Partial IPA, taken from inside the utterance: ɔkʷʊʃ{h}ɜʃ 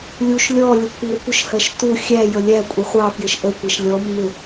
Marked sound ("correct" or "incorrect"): correct